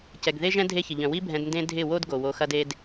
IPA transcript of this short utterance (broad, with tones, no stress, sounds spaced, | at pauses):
c ɛ˨ ɡ ð e˦ ʒ ɛ̃˦ dʱ e˦ ç ɪ˨ ʎ œ̃˨ w i˦ bʱ ɛ̃˧ d n d ẽ˦ dʱ ɪ˦˨ w o˦ d ɡ o˨ w o˧ x ɐ˦ d e˧ d